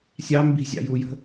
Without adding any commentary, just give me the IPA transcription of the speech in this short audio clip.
sʲ ɑ m b i̤ zʲ ɑ̰ j u j ə̤

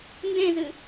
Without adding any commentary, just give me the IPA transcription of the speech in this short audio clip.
n d ẽ z ɨ

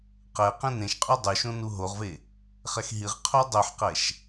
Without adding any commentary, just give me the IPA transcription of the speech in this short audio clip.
q ɛ q ẽ n ẽ ʃ qʼ ø dˤ ʉ ʃ õ n u ɦ o ʁ v e | χ ɛ x ɦ i ʁ qʰ o dˤ ø ħ q ɛ ʃ

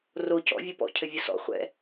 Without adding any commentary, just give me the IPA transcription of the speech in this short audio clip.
r o c ɔ̰ vʲ o p ɔ̰ cʰ ɘ vʲ o s ɔ̰ χʷ ɛ̰

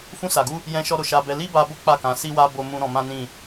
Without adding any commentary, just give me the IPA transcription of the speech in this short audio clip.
f ũ˧ s a˨ ɡ u˧ | j ɛ̃˧ ʃ ɔ˧ ɾ o˨ ʃ a˧ b ɛ˧ l i˦ b a˧ b o˦ k͡p a˦˨ k ã˨˦ s i˧ w a˧ b o˧ m ũ˧ ɾ ɔ̃˧ m ã˦ n ĩ˦˨

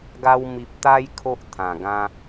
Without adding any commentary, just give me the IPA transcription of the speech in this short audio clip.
ɡ a˦ w m i˨ p̚ t̪ a˧ j kʰ o˦ ʔ t̪ʰ ã˨˩ ɡ ã˦

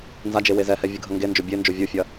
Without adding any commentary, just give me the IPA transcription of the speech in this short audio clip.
n z a d͡ʒ e w e z ɛ h ɛ vʲ ɯ ɡʱ ɐ ŋ ɡ e n d͡ʒ o bʲ e n d͡ʒ o vʲ u fʲ ɐ

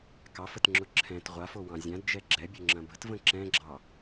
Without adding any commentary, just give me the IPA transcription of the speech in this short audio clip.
k ɑ f ə t ŋ͡ǁ ʊ ǁʰ ɛ̃ t ʁʷ a f o w ɑ̃ zʲ ã d d͡ʒ ɛ ɡ͡ǁ ɛ bʲ ʊ ŋ͡ǁ ɐ̃ b ə̤ t v ə̃ ǁ ɛ̃ ɡ͡ǁ ɑ

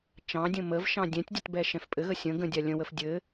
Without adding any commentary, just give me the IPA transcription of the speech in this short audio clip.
t͡ʃ ɑ̃ dʲ ə̃ m ə v ʃ ɑ̃ dʲ ɛ̃ tʲ dʲ ə t b ɛ ʃ ɛ̃ f pʼ ɘ ɣ ə sʲ ə̃ ɡ ə̃ dʲ a lʲ ə̃ w ə f dʲ ɘ

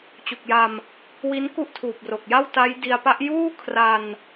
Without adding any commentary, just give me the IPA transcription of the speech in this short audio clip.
t͡ɕ u˨˩ k̚ j a˧ m | w i˦˥ n k u˥˩ ʔ tʰ uː˨˩ p̚ r o˨˩ k̚ j a˥˩ w t a˦˥ j d i˧ a̯ p a˦˥ ʔ j uː˥˩ kʰ r a˧ n

